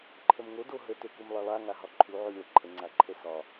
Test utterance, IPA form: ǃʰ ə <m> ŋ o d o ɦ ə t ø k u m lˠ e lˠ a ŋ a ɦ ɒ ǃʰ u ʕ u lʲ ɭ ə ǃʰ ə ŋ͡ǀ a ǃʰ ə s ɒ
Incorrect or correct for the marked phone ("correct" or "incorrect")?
correct